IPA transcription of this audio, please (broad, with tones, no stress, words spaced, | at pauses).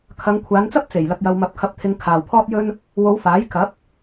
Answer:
kʰɐ˨˧ŋkʷʰaː˨˧nt͡sɐ˥p̚ t͡se˨˩jlɐ˧k̚jɐ˧wmɐ˧p̚ kʰɐ˧p̚t̪ʰɪ˧ŋ kʰaː˨wpʰɔː˥t̚jɵ˥n | wo˨˧w faː˨˥jkɐ˨˥p̚